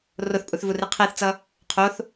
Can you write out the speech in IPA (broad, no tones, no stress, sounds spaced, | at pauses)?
r o θ pʼ u θ v u r i qʰ ɛ θ t͡s ʌ | qʰ o θ